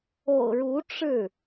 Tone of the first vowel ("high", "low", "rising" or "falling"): low